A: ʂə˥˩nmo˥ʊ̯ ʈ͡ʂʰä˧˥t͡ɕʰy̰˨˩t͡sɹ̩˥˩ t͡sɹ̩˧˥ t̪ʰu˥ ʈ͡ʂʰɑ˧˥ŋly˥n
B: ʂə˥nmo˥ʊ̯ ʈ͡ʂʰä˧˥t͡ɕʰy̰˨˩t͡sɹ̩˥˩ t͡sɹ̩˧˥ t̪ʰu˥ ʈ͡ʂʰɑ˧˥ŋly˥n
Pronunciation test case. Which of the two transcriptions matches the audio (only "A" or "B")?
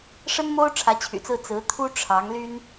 B